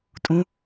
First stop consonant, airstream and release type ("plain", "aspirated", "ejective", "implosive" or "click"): ejective